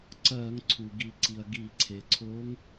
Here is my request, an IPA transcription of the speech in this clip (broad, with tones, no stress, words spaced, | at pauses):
ǀɜ˧˩˧ŋ ǀʰu˩ ɡi˧˩˧ǀi˩ɐ̯ ɡi˧˩˧ǀʰe˩ǀʰo˧˥ŋ